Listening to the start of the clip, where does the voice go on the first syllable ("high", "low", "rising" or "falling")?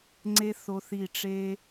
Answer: high